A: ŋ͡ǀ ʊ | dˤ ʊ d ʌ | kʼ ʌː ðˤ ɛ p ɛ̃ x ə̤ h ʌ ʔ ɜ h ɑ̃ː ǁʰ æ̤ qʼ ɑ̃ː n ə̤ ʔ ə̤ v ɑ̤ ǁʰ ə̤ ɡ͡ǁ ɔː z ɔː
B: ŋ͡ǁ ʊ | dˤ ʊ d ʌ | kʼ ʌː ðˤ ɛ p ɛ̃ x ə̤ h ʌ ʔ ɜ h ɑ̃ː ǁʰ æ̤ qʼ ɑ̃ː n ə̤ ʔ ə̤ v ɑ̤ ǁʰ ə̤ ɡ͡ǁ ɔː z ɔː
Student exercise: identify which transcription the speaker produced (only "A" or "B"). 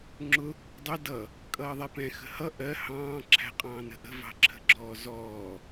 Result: B